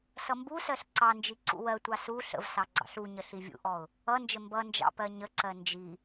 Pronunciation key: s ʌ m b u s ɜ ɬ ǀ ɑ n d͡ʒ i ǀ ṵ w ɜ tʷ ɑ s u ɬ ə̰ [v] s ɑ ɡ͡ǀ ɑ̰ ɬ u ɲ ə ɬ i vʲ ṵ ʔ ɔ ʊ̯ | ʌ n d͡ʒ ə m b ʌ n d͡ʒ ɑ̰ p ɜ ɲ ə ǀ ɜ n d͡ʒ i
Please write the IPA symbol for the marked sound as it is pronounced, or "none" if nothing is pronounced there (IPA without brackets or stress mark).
v